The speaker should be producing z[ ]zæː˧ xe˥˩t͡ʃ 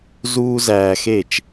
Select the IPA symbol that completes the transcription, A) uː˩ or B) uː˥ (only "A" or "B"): B